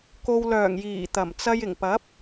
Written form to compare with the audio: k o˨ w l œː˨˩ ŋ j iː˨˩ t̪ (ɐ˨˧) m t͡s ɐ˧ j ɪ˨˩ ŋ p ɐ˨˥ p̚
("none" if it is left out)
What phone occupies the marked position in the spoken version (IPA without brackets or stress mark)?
ɐ˨˩